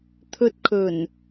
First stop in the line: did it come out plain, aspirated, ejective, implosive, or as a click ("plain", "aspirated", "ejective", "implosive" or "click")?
aspirated